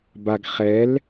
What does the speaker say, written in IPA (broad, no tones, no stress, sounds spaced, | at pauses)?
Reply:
b a ɡ χ ɛ l